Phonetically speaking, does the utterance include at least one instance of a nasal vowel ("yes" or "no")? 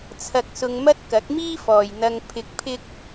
no